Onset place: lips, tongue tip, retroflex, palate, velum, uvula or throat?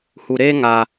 throat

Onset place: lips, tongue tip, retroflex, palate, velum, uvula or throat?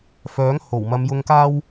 lips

